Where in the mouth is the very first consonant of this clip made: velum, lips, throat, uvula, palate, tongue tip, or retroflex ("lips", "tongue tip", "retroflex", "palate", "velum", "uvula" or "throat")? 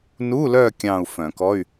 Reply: tongue tip